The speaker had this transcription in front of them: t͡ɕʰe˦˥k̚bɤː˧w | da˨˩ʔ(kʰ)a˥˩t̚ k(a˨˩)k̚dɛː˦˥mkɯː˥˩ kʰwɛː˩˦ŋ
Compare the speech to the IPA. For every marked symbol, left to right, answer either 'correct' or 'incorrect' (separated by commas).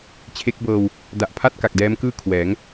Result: incorrect, correct